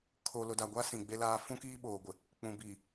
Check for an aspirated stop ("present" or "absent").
present